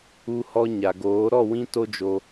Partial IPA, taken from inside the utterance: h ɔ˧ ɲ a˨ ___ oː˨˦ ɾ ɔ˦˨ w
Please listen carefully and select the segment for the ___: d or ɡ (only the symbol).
ɡ